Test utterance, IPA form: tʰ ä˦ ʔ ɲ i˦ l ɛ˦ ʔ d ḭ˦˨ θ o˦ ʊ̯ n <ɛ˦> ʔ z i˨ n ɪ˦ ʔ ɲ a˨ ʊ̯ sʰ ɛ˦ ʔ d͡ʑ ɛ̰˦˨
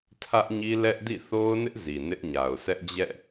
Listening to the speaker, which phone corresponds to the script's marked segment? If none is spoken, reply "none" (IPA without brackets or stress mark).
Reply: ɪ˦